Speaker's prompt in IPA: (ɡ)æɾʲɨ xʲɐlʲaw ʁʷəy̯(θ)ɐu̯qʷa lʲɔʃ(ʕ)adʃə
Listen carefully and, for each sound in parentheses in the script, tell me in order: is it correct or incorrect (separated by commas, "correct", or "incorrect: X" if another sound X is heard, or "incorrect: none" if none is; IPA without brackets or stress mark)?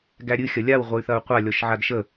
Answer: correct, correct, correct